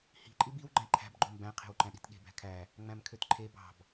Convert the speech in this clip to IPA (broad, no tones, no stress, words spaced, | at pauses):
hi̤ ǃʼibiw ɡ͡ǃæ̃ǃʰæ̤b ɡ͡ǃombæ̃ qʰe̤wǃæ̃ɗi̤tɠe̤ bæ̤kʰæ | ŋ͡mæ̃mkʰøtǃʰe bɑ̤b